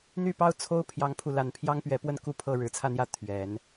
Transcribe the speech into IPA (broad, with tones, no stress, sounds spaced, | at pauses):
n̪ y˥˩ p ɑ˥ ʊ̯ t͡sʰ o˥ ʊ̯ pʰ j ɑ˥ ŋ pʰ u˥˧ l a˥˩ n pʰ j ɑ˥ ŋ p ɥ ɛ˧˥ p w ə˥˧ n k u˥˧ pʰ ɤ˥˩ ɻ ɻ̩˧˥ t͡sʰ ä˥˧ n̪ j ä˥˩ t̪ʰ ɥ ɛ˨˩˦ n